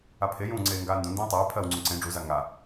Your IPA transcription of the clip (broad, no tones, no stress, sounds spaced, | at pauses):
a pʰ e j ũː ŋ͡ǀ eː ŋ ɡ aː n d ũ n d ẽː tˤ eː pʰ ɜ w ŋ͡ǀ ũ ǀ ẽ ɖ͡ʐ u z a ŋ a